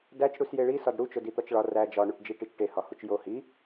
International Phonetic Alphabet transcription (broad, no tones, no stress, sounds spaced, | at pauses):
d æ t͡ʃ ɽ u s j e ɭ i s ɒ d ɽ u t͡ʃ o d i t̪ ɒ t͡ʃ ɭ ɒ r æ d͡ʒ ɒ ɳ u ʈ d͡ʒ i ʈ i t͡ʃ ʈ e h ɒ h u t͡ʃ j o h i